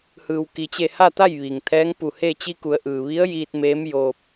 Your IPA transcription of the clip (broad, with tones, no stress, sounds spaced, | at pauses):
h ɯː˩ w k i˩ t͡ɕ e˧˩ h a˥˨ t̪ a˥˨ j ʋ iː˩ ŋ t̪ʰ ɛː˧˥ ŋ p u˧˩ h e˥˨ t͡ɕ i˧ k u˩˧ ə̯ ʔ ɯː˩ ʋ i˧˥ ə̯ j iː˧ t̚ m eː˧˥ m j oː˧ p̚